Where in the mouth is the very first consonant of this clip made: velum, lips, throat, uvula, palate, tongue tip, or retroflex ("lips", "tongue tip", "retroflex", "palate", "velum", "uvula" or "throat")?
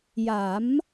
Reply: palate